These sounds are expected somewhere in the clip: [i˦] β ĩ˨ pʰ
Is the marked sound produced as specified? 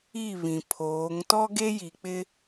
no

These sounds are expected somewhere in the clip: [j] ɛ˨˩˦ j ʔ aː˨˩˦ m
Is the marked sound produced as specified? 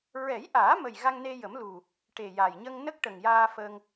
no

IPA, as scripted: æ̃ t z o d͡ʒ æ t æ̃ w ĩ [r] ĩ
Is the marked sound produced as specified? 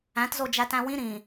no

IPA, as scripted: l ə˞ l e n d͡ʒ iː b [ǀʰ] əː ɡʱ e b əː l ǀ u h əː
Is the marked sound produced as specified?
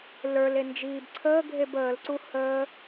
yes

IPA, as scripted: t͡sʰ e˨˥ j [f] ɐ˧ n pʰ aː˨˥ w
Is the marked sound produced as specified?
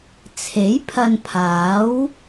no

